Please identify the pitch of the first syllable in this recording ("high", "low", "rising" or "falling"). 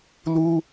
high